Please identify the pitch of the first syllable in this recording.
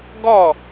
falling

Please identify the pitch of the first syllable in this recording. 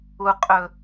low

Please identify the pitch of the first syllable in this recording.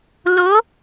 rising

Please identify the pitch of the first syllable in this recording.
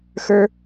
high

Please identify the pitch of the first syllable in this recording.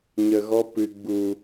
low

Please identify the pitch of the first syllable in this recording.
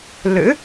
rising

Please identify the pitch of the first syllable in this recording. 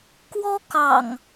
high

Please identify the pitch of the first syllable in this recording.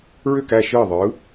falling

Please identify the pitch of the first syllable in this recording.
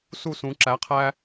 falling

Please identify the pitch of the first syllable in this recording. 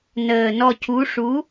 low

